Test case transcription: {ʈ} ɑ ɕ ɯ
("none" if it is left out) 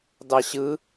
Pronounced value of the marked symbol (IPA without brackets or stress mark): d